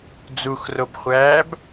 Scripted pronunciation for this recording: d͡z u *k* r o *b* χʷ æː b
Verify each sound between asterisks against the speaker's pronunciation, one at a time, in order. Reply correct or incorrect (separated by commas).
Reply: incorrect, correct